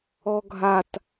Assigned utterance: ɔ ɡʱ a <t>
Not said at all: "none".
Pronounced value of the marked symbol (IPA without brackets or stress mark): t